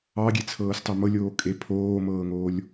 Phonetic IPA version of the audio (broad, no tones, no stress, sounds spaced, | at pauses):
ɑ ɡʲ e t͡sʰ ɤː s tˤ ɤ m ɤ lʲ oː kʼ e pʰ oː m ɤː ŋ oː lʲ